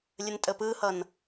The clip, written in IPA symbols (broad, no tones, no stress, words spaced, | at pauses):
lʲəntʼəpɯhʌn